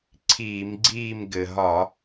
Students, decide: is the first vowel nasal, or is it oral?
oral